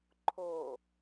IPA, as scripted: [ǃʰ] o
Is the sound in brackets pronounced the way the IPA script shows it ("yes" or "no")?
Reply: yes